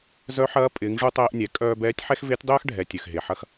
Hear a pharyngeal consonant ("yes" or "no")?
yes